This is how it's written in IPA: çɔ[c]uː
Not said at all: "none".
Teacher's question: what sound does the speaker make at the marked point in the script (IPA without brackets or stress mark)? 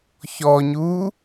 ɲ